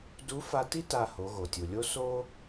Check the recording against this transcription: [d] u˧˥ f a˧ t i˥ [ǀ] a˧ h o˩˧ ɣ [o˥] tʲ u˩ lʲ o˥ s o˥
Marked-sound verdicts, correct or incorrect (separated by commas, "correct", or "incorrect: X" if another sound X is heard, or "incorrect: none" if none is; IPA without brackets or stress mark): correct, incorrect: t, incorrect: o˩